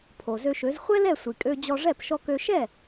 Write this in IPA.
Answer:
pʰo˩zø˧ʃø˩˥z χʷɛ˥lɛ˥˩sʷi˩ kʼø˧d͡ʑɔ˧ʐɛ˥˩p ʃɔ˧kø˧ ʃɛ˥˩

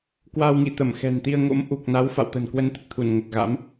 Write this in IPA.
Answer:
kwa˧wŋḭ˧˨ t̪ə˧˩mxɛ̤˨˩nt̪i˧ə̯ŋo̰˧˥m ʔu˨˩k̚na˨˦wfa̰˧˨w t̪ə̤˨˩nkwə˧nt̪ə˨˩t̚t̪ʰu˧˩n ŋə˨˩t̚ɣa̰˧˥m

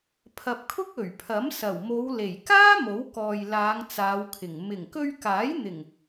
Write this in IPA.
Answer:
pʰɐ˨p̚kʰʊ˥k̚ ɵ˨˩ɥpʰɐ˨˥msɐ˨˩w mo˨˧wle˨˩j kaː˥ mo˨˥wkɔː˨jlaː˨˧ŋ t͡saː˨˧wkʰɪ˨˩ŋ mɪ˨˩ŋkɵ˧ɥkaː˨˥jn̪ɪ˨˩ŋ

